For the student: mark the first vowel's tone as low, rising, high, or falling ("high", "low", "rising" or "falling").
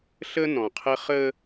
high